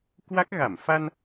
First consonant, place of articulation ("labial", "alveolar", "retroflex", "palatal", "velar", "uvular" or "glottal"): velar